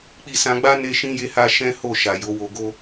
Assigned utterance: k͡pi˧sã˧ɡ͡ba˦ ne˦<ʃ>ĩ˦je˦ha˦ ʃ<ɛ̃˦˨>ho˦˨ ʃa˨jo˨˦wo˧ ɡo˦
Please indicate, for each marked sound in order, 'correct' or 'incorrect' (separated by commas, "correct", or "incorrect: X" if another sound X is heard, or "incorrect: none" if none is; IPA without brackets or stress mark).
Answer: correct, incorrect: ɛ̃˦